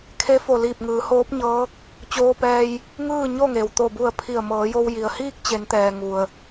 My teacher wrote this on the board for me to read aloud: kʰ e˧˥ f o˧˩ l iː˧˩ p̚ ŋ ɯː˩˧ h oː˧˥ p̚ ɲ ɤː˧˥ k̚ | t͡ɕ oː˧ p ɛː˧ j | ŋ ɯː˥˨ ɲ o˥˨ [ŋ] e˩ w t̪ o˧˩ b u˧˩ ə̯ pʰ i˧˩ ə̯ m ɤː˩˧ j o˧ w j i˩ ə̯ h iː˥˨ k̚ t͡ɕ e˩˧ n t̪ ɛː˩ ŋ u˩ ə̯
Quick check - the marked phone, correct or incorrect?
correct